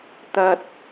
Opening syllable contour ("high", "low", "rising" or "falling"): high